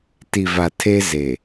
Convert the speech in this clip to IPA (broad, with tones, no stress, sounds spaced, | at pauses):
t i˨ v a˨ tʰ e˦ z e˨